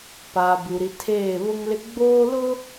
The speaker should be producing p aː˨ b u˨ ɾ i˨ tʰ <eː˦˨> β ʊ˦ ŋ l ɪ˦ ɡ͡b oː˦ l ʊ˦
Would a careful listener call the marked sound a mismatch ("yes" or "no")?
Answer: no